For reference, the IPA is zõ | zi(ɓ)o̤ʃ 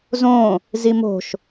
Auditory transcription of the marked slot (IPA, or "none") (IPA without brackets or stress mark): m